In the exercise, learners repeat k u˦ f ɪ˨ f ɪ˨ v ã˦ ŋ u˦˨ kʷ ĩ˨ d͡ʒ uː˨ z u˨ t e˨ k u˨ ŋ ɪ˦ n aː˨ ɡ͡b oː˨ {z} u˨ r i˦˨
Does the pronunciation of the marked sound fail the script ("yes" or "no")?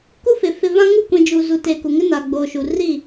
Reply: yes